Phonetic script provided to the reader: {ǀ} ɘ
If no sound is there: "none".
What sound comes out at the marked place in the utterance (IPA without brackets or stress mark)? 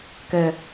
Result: k